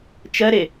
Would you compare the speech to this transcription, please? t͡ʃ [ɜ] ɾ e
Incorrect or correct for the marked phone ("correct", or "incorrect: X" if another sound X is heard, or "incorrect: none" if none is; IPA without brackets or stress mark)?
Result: correct